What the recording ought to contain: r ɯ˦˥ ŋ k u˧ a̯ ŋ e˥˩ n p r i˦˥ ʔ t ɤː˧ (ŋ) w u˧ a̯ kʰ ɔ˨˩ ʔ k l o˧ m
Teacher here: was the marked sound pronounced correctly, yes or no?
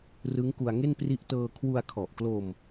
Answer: no